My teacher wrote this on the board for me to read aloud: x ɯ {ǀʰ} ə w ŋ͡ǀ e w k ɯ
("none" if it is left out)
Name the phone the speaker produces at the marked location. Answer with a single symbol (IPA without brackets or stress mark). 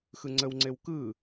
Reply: ŋ͡ǀ